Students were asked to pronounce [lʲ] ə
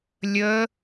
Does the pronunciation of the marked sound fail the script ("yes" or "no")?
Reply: no